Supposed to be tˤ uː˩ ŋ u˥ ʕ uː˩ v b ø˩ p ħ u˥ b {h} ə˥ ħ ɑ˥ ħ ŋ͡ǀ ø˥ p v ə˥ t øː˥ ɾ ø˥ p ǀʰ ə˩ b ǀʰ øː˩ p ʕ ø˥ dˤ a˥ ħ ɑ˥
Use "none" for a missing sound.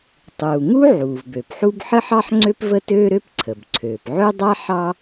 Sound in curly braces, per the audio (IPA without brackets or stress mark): ħ